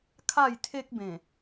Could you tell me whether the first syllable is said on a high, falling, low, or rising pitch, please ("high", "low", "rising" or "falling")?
falling